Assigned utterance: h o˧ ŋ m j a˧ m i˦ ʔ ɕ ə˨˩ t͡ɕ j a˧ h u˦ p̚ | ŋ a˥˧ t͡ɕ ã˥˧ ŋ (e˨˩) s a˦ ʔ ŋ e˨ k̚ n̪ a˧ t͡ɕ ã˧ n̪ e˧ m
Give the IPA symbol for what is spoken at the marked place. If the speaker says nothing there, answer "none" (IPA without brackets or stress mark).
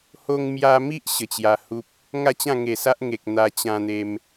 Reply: e˨˩